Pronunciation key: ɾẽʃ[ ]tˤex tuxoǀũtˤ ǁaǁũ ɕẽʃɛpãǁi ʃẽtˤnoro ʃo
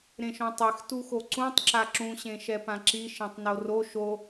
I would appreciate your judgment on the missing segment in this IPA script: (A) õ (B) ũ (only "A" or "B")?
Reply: A